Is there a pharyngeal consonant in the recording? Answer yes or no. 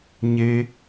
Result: no